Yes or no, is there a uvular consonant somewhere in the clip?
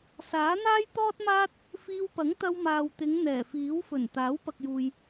no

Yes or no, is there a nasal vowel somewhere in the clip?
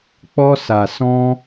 yes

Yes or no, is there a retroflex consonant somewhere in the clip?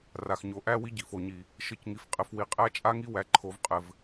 no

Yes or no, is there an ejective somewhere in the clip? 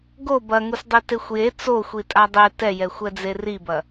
yes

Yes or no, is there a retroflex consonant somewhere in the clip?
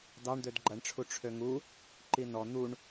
yes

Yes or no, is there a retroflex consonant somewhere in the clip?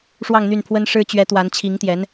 yes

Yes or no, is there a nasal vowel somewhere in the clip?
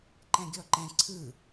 yes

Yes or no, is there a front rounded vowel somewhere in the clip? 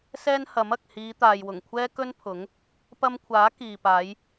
no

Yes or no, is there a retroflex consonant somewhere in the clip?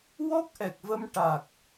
yes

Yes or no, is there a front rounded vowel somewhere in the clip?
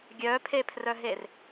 yes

